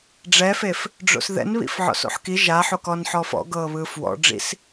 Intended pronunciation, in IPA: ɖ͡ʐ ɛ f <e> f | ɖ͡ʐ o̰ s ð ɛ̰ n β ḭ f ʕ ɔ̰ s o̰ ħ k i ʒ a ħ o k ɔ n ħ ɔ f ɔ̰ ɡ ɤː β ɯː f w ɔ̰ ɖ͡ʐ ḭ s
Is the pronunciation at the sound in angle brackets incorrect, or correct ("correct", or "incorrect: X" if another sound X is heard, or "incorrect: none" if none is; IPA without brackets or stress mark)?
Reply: correct